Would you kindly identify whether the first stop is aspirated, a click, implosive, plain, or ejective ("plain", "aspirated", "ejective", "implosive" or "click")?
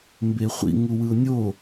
plain